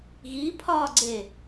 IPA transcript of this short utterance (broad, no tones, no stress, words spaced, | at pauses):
ɣipʰɒːɡ͡ǀe